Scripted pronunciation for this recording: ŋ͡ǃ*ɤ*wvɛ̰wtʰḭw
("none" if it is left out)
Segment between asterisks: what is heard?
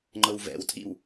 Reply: ɤ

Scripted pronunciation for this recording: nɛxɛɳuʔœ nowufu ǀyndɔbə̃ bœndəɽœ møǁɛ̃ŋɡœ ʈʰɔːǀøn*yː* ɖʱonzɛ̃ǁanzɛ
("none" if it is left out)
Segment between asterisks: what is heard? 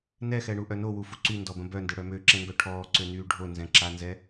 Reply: yː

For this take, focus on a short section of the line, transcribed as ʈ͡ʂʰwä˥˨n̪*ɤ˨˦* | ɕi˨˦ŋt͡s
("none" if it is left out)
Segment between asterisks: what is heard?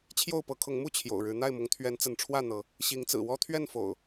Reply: ɤ˨˦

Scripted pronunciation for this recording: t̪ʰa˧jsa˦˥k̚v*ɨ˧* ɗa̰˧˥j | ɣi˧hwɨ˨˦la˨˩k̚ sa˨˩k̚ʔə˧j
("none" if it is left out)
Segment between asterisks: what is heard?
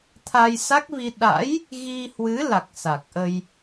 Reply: i˧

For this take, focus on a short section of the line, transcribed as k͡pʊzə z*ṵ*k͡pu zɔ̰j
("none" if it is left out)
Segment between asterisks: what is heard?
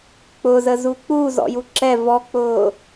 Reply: u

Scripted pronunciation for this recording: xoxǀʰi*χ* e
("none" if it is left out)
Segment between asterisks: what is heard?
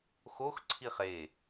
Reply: χ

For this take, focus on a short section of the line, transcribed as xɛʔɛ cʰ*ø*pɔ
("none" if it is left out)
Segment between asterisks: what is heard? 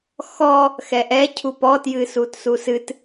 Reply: u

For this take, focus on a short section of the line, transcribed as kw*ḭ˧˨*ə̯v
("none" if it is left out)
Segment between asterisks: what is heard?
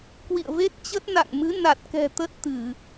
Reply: ḭ˧˨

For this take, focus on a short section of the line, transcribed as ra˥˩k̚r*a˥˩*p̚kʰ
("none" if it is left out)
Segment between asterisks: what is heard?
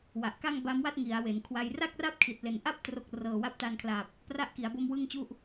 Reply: a˥˩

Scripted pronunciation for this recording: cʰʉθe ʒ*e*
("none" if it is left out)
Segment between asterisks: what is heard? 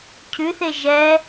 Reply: ɛ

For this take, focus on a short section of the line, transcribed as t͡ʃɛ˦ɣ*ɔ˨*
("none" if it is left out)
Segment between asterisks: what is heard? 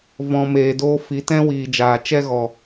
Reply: ɔ˨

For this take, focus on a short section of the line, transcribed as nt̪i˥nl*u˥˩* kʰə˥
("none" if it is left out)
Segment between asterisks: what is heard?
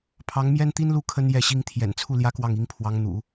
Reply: u˥˩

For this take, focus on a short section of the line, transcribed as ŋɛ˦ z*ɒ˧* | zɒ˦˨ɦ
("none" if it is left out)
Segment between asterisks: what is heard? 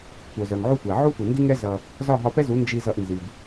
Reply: ʌ˧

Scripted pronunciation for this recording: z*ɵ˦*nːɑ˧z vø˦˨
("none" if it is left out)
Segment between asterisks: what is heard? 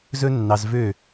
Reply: ɵ˦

